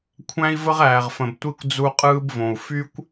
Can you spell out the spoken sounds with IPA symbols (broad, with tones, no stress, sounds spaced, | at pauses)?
kʷʰ æ̃˦ i̯ v ə˦ ʁ æː˨ ʁ f ə̃˨ b tʷ i˦ kʷ d͡z u˦ qʼ ɯː˦ b v õ˨ u̯ f y˦ kʷ